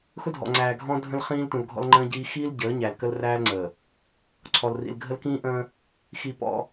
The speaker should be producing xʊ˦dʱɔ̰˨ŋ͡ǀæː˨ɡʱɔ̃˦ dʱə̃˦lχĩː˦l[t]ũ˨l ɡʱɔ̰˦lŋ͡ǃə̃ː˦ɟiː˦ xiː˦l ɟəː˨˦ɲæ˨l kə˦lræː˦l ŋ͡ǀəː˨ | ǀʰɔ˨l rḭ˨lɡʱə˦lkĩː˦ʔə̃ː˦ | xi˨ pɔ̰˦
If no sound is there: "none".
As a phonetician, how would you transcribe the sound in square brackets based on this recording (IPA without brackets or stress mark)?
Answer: t